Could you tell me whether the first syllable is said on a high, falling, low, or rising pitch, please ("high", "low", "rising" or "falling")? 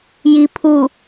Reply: low